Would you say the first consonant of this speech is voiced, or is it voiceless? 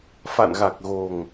voiceless